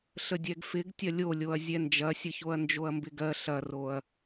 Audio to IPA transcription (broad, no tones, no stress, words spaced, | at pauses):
ɬədʲɛɡfɪɡ tʲɐlʲolʲoɐ̯ zʲɛnd͡ʒɐsʲəçoɐ̯ nd͡ʒoɐ̯mbɪɡɜ ɬɐroɐ̯